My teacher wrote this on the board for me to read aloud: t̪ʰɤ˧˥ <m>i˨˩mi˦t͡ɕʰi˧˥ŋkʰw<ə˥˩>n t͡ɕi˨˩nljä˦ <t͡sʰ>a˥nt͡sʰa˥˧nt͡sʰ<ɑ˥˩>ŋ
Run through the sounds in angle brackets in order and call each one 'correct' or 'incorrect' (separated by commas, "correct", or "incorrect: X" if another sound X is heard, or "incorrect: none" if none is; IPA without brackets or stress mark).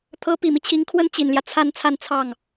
incorrect: p, incorrect: ə˥, correct, correct